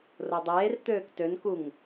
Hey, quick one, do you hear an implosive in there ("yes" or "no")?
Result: no